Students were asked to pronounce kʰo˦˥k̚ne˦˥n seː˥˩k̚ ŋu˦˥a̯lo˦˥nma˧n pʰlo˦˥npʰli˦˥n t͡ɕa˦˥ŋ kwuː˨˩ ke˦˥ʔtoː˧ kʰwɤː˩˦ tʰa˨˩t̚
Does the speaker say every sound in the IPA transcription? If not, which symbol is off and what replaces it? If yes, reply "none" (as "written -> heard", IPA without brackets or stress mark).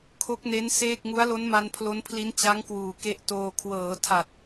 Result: none